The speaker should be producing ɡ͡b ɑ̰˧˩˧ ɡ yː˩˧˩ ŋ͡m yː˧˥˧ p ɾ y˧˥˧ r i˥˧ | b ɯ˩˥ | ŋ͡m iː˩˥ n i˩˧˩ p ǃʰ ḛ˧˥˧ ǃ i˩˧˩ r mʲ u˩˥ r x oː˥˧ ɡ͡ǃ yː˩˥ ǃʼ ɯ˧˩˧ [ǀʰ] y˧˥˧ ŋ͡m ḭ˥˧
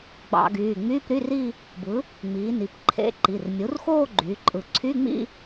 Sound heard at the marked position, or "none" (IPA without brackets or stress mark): ǀʰ